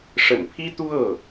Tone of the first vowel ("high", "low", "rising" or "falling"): low